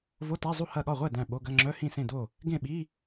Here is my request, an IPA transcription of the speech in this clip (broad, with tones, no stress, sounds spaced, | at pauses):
v o˧˥˧ t æ˧˥˧ zˤ u˥˩ h ɐ˥˩ ɠ ɒ˥˩ ʁʷ ɛ˥˩ d æ̃˥˩ ɓ o˧˥˧ ɡ ɐ˧˥˧ ŋ͡ǁ œ˧˥˧ h ĩ˥˩ s ẽ˥˩ d o˥˩ | ɡ ẽ˥˩ ɓ i˧˥˧